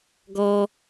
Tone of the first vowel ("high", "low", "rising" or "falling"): high